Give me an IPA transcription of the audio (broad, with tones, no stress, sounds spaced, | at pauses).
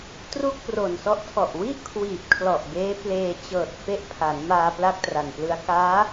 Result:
t r u˥˩ k̚ p r o˨˩ n s ɔ˦˥ ʔ tʰ ɔ˨˩ ʔ w i˥˩ ʔ kʰ w iː˨˩ p̚ kʰ l ɔ˨˩ ʔ b eː˦˥ p l eː˧ t͡ɕ ɤː˨˩ t̚ f e˦˥ ʔ pʰ a˩˦ n m aː˧ p l a˥˩ k̚ t r a˨˩ n p l ɯ˦˥ a̯ k aː˦˥